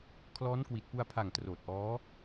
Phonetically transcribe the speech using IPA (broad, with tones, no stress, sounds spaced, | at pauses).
kʰ l ɔː˦˥ n k w i˨˩ t̚ p u˧ a̯ pʰ a˨˩ ŋ t r oː˨˩ t̚ ʔ ɔː˦˥